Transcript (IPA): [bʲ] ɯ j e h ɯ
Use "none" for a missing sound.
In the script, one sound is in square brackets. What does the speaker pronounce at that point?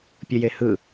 pʲ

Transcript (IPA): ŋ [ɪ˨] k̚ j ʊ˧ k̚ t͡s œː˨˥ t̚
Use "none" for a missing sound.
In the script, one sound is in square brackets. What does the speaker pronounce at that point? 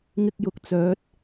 ɪ˥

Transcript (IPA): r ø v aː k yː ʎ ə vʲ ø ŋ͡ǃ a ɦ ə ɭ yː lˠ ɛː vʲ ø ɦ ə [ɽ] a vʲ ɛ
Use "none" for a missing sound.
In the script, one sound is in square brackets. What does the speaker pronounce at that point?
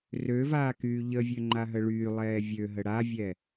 ɽ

